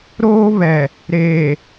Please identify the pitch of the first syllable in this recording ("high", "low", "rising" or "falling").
high